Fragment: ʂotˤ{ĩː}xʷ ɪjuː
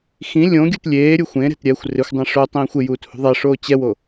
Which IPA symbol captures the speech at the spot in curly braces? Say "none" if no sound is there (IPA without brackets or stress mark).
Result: ĩː